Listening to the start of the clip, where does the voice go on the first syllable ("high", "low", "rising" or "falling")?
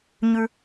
high